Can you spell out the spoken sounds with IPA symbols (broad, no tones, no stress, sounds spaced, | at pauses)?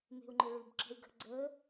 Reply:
m e̤ u̯ ŋ͡ǃ ɵ ɭ ʉ b ǁ ə̤ y̯ ɡ ə̤ ɡ͡ǀ əː